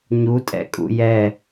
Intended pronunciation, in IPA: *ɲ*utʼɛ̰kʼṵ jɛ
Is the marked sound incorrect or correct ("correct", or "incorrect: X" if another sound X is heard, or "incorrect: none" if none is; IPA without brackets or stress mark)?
correct